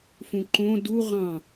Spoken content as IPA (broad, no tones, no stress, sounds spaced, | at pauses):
f ũ ǃ õ d u ʁ ɑ̃